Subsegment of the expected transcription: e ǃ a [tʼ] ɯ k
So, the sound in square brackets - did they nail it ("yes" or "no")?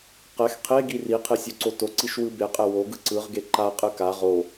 no